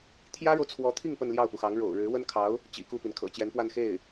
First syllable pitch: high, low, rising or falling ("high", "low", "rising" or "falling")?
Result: high